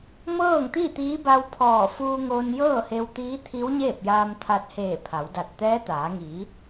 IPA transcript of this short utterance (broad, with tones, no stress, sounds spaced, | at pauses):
m ɤː˥˨ ŋ t̪ i˥˨ t̪ iː˧˥ b a˧ w pʰ ɔː˧˩ f uː˧ ŋ oː˧ n j ɤː˥˨ h e˧ w t̪ iː˧˥ t̪ʰ i˧˥ w ɲ eː˥˨ p̚ j aː˧ m t̪ʰ a˧ t̚ h eː˧˩ pʰ a˩˧ w d a˧˩ t̚ t̪ ɛː˧˥ t̪ aː˩˧ ŋ iː˩˧